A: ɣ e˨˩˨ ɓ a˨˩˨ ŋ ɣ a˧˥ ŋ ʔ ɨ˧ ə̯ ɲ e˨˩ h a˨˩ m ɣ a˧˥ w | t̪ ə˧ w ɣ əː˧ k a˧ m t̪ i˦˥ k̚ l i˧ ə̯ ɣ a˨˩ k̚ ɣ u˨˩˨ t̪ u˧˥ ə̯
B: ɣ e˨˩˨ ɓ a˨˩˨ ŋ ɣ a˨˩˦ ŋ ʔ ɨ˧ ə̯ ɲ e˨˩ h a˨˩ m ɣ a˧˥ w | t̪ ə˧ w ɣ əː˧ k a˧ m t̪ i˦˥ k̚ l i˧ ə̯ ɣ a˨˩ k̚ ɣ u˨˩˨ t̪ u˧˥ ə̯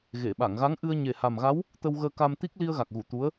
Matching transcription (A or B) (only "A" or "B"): A